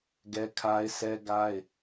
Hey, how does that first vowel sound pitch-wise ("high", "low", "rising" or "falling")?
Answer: high